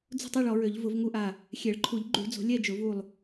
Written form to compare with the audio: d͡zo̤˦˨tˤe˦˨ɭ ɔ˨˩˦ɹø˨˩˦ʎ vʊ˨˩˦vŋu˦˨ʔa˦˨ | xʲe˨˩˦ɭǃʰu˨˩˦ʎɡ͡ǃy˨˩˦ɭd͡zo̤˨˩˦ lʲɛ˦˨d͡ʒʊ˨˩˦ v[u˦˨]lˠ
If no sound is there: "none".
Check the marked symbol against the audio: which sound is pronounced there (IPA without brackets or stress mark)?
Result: u˦˨